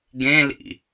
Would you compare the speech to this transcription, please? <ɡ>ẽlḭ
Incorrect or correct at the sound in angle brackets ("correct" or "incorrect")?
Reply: correct